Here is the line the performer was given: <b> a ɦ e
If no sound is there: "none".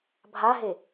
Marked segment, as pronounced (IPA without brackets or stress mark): bʱ